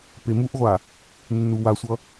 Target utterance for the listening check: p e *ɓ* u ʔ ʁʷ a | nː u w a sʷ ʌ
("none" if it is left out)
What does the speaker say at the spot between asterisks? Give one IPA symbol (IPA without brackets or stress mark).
m